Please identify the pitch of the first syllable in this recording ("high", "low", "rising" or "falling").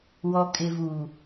low